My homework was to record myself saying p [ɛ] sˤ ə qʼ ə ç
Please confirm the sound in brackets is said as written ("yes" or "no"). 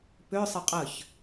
no